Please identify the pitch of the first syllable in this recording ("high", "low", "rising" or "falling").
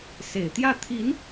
low